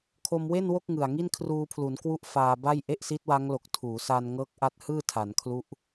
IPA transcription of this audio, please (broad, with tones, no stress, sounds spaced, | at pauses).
kʰ o˧ m w e˥˩ n w o˥˩ k̚ ŋ ɯ˨˩ a̯ ŋ i˥˩ n kʰ r uː˧ pʰ l u˩˦ n k w u˥˩ ʔ f aː˧ b a˥˩ j ʔ e˥˩ ʔ s i˦˥ t̚ w a˦˥ ŋ l o˨˩ k̚ tʰ uː˩˦ s a˧ n ŋ ɤː˦˥ k̚ ʔ a˦˥ t̚ h ɯː˥˩ tʰ a˩˦ n kʰ l u˦˥ ʔ